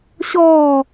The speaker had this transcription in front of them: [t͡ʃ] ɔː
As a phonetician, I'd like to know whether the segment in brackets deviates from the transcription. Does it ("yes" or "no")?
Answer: yes